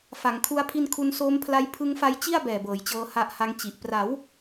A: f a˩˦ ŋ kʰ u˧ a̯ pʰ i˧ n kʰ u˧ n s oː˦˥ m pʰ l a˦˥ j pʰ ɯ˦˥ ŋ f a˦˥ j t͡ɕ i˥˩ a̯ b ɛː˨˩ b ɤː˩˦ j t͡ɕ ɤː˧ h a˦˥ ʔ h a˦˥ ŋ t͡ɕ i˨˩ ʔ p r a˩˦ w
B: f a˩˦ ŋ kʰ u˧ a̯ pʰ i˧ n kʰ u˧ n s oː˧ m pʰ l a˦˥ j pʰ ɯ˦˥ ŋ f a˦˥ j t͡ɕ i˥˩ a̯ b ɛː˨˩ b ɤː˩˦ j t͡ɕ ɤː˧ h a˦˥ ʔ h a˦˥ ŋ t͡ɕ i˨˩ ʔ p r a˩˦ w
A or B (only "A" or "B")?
A